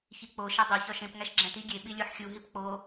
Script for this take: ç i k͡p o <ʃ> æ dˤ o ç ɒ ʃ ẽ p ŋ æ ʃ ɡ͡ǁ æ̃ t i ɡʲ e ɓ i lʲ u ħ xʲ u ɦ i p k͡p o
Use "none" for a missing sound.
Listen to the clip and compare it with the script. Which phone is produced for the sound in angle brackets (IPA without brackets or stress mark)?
ʃ